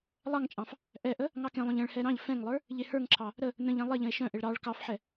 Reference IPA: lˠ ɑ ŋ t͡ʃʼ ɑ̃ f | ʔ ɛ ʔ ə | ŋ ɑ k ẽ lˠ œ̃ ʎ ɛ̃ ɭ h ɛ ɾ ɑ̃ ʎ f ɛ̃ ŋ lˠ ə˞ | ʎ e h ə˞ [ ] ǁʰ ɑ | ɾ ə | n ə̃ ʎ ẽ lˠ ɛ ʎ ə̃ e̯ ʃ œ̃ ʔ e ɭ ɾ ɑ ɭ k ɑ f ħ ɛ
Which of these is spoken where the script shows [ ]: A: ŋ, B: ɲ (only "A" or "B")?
A